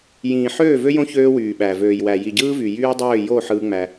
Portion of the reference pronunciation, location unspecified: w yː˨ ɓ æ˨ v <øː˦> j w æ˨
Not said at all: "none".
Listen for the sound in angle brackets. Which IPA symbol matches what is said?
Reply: øː˨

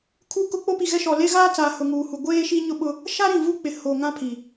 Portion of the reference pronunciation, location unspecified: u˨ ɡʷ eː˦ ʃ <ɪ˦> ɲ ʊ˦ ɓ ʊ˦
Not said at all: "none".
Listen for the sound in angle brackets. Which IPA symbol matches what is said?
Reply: i˦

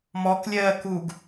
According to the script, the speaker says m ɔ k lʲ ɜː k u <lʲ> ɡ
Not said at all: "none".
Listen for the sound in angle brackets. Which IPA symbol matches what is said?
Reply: none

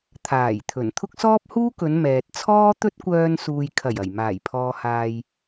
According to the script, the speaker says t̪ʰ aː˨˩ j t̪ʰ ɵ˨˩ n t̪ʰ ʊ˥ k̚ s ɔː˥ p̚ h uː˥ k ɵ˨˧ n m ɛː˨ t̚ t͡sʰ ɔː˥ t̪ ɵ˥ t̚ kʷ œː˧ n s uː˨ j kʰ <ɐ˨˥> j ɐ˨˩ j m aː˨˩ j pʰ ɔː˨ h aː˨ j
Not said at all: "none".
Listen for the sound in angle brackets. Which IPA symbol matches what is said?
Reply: ɐ˨˩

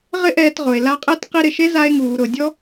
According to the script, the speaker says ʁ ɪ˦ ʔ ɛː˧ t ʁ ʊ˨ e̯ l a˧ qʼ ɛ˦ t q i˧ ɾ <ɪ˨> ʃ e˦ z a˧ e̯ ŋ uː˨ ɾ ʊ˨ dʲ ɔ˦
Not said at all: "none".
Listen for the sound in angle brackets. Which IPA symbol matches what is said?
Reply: ɪ˨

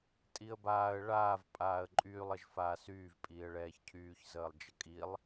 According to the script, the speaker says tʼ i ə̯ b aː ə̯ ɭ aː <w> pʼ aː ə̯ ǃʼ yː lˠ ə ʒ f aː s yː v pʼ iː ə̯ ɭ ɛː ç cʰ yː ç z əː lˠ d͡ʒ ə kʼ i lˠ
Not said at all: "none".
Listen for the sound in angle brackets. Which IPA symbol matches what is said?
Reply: v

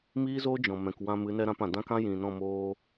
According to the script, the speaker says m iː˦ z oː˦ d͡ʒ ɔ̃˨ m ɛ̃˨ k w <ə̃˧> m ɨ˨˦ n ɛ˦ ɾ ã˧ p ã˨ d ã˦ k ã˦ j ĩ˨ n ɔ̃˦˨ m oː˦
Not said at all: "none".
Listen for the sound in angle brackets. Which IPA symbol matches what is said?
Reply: ã˧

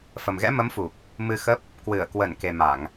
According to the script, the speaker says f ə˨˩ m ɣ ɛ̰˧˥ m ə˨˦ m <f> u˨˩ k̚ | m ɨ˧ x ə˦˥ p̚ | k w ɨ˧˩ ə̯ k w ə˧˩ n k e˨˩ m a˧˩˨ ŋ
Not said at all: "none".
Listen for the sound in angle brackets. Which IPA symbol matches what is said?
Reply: f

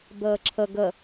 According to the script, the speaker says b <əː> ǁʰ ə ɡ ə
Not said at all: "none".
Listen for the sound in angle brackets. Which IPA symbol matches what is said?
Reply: əː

